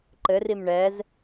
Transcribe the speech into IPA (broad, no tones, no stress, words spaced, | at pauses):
ǃɘrim ɳɛz